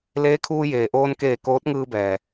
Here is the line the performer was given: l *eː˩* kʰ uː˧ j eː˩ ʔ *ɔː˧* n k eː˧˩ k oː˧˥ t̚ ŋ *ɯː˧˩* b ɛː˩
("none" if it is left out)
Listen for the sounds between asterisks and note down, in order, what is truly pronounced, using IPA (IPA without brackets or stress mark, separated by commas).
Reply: eː˧˥, oː˧, ɯː˧